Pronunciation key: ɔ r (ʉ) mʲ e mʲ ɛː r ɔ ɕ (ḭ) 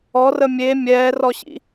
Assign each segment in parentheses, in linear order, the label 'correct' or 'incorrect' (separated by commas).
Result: incorrect, correct